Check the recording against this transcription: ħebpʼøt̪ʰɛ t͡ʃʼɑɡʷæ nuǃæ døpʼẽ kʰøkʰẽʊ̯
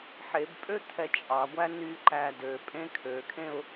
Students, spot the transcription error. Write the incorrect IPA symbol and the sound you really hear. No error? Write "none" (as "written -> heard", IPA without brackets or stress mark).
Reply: u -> y